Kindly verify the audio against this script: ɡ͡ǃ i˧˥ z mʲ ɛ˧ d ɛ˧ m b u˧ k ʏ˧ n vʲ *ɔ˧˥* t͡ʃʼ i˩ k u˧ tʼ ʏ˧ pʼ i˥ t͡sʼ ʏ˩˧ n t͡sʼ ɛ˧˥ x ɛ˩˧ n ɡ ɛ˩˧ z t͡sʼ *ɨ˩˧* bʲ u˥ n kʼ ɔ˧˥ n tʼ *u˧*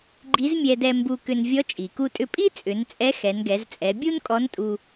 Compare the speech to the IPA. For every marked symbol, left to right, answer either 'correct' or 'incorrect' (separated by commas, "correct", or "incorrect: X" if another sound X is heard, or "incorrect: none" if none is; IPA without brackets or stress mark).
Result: correct, incorrect: ɛ˩˧, correct